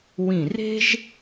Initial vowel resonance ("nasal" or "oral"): nasal